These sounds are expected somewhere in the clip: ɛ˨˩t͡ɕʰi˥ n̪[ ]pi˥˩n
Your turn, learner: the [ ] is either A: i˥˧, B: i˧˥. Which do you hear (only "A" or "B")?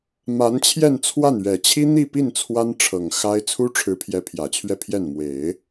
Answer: A